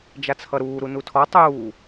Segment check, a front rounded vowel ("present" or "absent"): absent